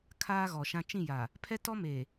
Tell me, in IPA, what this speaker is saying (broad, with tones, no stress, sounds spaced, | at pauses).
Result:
kʰ aː˦ ɣ ɔ˨ ʃ ã˦ t͡ʃ ĩ˦˨ j a˨ | pʰ ɛ˦ t ɔ˦ m e˨